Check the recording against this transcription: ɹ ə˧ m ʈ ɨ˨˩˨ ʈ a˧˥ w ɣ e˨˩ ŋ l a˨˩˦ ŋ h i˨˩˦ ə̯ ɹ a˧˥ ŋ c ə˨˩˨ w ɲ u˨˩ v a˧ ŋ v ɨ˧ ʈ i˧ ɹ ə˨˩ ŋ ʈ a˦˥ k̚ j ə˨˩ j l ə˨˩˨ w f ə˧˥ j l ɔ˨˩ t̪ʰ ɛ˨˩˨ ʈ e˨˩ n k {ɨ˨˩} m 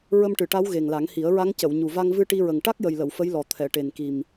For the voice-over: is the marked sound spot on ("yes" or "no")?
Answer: no